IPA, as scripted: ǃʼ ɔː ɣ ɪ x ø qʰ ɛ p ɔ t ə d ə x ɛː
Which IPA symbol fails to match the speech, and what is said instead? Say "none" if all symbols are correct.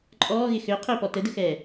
ɛ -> ø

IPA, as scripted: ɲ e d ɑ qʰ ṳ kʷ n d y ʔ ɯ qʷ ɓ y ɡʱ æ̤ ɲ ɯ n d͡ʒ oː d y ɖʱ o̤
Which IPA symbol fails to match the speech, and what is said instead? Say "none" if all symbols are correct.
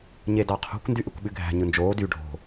qʷ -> kʷ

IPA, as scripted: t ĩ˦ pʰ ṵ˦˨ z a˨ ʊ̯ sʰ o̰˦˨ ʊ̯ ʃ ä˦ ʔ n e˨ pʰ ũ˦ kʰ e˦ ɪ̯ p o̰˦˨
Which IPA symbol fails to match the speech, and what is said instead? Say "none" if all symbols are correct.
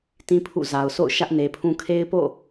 none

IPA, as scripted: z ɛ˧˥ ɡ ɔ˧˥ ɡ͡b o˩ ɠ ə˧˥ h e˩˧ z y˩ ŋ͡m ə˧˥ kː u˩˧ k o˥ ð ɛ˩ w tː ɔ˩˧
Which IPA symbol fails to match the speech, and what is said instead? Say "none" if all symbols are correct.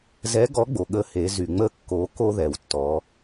u˩˧ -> o˩˧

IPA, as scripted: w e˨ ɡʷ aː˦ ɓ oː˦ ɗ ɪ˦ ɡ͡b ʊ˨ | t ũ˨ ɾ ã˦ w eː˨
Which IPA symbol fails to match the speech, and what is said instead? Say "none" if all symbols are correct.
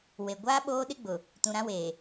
none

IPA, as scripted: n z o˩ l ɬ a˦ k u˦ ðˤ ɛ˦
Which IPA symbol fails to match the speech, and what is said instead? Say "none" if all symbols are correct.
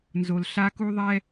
none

